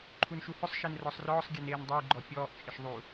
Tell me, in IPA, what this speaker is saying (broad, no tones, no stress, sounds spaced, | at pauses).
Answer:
ǃʰ u n ʃ u h ʊ sˤ ʃ e n r ɔ sˤ r ɔː sˤ ɡʲ e n eː n dˤ ɪː ɡ͡ǃ ɔ pʲ ɔː ʔ t͡ʃʼ ɪ ʃ ðˤ u